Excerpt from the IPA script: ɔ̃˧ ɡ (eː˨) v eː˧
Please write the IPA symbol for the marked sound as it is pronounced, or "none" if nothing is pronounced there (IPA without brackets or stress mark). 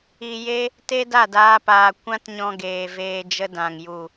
eː˨